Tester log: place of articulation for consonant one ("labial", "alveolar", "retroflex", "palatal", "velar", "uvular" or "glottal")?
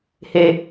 glottal